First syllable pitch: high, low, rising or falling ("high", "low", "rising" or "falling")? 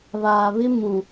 low